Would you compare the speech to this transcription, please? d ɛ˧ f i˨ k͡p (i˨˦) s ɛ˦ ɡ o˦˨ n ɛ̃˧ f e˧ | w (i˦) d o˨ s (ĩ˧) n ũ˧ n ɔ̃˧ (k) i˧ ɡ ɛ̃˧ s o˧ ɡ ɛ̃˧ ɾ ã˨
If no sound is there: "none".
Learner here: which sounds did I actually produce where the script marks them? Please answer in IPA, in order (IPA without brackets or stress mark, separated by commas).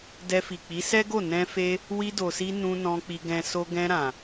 i˨˦, i˧, i˧, k͡p